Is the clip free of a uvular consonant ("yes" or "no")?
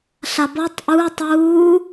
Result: yes